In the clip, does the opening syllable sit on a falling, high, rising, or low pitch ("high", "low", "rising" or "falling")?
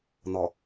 low